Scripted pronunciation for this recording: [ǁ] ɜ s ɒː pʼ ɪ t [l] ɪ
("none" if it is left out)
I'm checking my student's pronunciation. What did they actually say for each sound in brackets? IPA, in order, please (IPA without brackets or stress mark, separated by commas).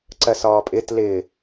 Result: ǀ, l